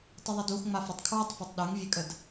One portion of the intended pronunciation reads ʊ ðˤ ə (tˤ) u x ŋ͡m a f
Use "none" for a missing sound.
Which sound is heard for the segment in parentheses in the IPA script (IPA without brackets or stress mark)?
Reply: d